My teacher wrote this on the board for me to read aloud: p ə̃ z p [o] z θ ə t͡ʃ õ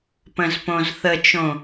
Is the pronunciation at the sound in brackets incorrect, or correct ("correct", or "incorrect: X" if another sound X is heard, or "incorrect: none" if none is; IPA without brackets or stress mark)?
incorrect: õ